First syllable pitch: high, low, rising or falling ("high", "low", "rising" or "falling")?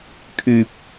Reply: low